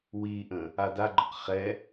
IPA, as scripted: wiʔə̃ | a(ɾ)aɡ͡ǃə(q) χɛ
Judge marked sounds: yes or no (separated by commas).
no, yes